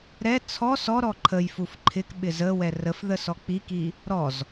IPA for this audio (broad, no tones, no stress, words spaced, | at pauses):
ɾɛ t͡sʰɔ sɔɾɔ ǃʰəjfuf ǃʰɪkɓɪ zəwɛ rəfðə sɔk͡piki | ɾɔz